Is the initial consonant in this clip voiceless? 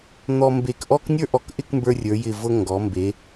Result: no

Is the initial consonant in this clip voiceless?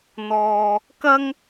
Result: no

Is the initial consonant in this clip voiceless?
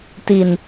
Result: yes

